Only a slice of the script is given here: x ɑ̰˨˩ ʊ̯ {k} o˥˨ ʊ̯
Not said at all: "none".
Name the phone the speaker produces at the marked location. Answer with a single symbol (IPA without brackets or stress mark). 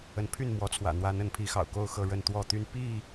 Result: k